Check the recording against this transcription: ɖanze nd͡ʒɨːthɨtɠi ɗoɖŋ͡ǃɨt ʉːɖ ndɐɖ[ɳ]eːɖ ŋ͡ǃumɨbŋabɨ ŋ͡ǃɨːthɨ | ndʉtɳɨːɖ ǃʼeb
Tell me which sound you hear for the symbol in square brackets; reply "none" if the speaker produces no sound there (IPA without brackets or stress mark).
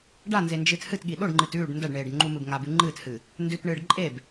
ɳ